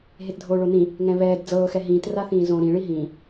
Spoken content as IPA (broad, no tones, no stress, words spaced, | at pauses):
ɦetdʱoːɭonĩ | ŋɛ̃βɛːd d͡zɤː xɛɦĩːt raθĩːzõ ɾĩ ɭiɦĩː